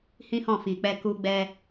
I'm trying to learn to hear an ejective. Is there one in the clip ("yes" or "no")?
no